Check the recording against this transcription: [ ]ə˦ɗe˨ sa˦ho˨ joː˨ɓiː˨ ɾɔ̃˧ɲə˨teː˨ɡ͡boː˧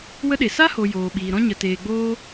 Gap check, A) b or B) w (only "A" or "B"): B